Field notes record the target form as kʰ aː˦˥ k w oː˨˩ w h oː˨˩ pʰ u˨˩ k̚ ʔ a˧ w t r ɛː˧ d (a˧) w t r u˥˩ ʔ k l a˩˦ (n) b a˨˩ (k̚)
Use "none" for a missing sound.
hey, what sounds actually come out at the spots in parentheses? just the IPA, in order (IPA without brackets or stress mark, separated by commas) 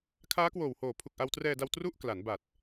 a˧, n, t̚